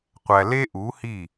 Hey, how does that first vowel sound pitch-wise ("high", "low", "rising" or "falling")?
low